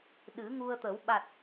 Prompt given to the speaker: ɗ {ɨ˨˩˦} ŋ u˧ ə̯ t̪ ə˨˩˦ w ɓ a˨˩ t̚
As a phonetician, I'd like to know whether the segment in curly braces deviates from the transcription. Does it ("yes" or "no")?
no